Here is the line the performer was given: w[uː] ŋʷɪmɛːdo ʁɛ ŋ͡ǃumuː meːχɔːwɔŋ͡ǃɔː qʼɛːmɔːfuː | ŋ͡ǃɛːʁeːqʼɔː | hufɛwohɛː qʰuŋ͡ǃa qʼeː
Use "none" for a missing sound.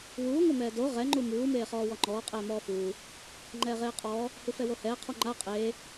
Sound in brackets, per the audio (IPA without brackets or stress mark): uː